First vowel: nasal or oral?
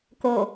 oral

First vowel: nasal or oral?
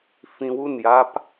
nasal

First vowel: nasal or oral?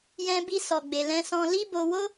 nasal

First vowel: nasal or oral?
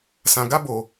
nasal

